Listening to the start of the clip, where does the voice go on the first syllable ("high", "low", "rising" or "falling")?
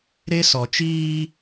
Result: high